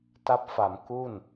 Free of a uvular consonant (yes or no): yes